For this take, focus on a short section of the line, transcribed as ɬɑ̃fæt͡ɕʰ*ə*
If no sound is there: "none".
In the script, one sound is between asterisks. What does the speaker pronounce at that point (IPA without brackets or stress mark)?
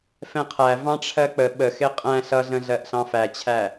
æ